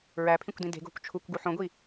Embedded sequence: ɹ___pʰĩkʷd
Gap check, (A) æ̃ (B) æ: B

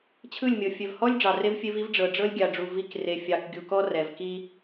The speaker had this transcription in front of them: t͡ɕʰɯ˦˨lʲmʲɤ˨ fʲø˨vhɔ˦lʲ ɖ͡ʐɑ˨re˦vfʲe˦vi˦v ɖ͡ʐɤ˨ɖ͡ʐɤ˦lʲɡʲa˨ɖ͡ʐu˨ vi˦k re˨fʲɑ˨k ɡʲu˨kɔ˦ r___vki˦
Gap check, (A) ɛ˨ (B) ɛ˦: A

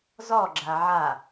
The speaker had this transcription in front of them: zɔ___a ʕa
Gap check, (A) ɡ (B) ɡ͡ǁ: B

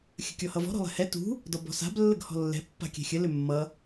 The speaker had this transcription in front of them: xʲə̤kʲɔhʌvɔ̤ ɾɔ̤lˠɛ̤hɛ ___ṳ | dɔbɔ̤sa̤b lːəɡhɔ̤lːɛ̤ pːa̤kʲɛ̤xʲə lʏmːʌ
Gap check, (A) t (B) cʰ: A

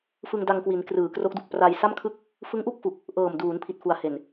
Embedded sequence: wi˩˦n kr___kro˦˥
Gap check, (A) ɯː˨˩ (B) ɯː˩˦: A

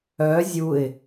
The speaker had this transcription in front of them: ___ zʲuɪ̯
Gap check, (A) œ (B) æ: A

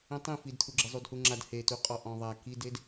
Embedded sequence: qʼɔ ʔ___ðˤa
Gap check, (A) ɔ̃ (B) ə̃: A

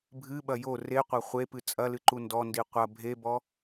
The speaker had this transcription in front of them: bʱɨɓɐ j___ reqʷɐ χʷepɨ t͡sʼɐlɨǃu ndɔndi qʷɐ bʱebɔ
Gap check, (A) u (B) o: B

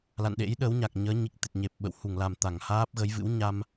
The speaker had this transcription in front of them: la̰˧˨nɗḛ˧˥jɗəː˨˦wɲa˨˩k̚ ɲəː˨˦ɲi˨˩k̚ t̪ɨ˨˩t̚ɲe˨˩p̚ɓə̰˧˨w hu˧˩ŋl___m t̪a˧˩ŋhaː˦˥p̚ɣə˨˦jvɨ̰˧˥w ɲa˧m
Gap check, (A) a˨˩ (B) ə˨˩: A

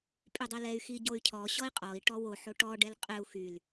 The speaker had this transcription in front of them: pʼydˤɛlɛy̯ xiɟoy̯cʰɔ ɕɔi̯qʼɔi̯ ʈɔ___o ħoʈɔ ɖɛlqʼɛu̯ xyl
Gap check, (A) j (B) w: B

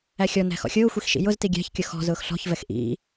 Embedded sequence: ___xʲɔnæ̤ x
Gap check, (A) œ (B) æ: B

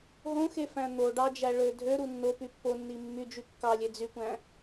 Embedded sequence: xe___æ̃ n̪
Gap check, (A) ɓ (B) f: B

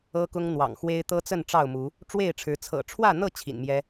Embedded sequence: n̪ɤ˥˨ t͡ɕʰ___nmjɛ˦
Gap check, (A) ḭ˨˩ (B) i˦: A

